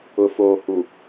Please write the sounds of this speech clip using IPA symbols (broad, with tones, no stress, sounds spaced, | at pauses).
ʊ˨ f oː˨ h u˨